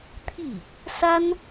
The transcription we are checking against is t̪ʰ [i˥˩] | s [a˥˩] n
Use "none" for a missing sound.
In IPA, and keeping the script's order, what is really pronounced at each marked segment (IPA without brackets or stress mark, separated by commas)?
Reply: i˥˩, a˥